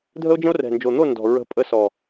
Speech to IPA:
dʱ ə˦ o̯ d͡ʒ ə̃˦ o̯ r ɛ̤˨ n d͡ʒ o˨ n̪ o˦˨ n d ɔ̤˨ ɹ ə̤˨˦ pʼ ə˧ s ɔ˨

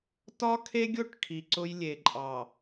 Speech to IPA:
t ɒ˦ kʰ e˦ ɡʲ ʊ˦˨ ʈ kʰ i˨ ǀ ʊ˦ j lʲ e˨ ǃʼ ɑ˨

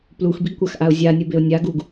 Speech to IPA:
p l u x b i ɡ kʷ a x ʔ a ʊ̯ zʲ a nʲ ɯ b e ʊ̯ nʲ a ɡ u ɡ

